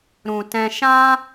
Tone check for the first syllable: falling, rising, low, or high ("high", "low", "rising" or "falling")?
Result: low